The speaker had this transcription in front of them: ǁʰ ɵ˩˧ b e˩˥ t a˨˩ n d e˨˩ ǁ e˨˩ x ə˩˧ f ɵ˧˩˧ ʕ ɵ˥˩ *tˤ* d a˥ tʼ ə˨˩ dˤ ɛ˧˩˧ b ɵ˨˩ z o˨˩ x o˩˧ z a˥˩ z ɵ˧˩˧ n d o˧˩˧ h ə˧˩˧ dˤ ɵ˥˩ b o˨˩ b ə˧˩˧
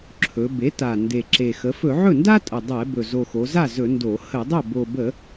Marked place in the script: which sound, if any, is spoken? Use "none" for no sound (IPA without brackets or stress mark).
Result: n